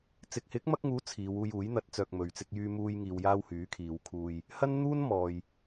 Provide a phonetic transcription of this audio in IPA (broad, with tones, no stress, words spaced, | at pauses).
t͡sɪ˨k̚hɪ˨˥k̚mɐ˧k̚ŋuː˨˥ t͡sʰiː˨˧wuː˧juː˨˥j n̪ɐ˨˥t̚t͡sœː˨k̚ mɵ˨ɥt͡sɪ˧k̚jyː˧muː˧j ŋiː˨wjaː˧w hyː˨˥kʰiː˨˧wkʰuː˧j | hɐ˥nn̪uː˥n mɔː˨j